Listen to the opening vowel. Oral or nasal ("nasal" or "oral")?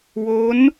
oral